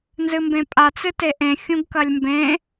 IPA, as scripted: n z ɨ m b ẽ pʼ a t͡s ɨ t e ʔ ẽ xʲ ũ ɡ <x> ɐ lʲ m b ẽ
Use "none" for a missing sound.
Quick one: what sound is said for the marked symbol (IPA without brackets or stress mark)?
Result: k